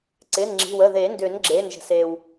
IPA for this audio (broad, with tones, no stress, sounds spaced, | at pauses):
ǀ ɪː˩˧˩ n ŋ͡ǁ i̤˩˧˩ w ə˩˧˩ ð e˨˩˦ n d ʏː˨˩˦ n ɡ͡ǁ eː˩˧˩ n ʒ ə̤˩ s eː˩ w